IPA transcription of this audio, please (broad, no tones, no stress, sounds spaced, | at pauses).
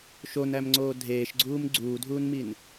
ʃ o n æ m ŋ͡ǀ oː dʱ eː ʃ ɡ͡ǀ uː m ɡ͡ǀ uː dʱ uː n m i n